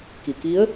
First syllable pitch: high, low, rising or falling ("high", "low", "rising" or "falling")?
low